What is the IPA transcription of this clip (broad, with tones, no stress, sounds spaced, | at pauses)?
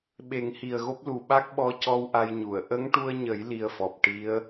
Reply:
ɓ e˨˩˦ ŋ h i˨˩ ə̯ ɣ o˦˥ p̚ l u˨˩ ɓ a˦˥ k̚ ɓ ɔ˧˥ c ɔ˧ w ʔ a˧ j ɲ u˨˩˨ ə̯ ʔ ə˧˥ ŋ ʈ u˧ ə̯ ɲ ə˨˩˦ j l i˧ ə̯ f ɔ˨˩ p̚ ʈ i˧˥ ə̯